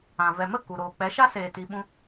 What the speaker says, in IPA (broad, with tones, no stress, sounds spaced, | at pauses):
ã˨ v ɛ˨ m ə˦˨ k u˨ ɾ oː˨ k͡p ɛ˨˦ ʃ a˦ s eː˨ t i˧ ɓ ũ˦